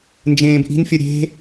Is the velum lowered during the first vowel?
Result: yes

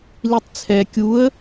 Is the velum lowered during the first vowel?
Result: no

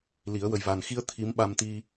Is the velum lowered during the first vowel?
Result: no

